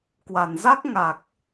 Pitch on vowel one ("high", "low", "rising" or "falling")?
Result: low